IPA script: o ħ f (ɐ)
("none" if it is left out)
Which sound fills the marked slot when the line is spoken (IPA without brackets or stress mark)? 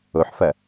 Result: ɐ